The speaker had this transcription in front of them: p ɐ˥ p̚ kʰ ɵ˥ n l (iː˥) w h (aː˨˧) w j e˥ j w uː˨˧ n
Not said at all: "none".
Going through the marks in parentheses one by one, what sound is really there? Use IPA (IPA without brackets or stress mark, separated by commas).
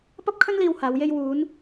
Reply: iː˧, aː˨˧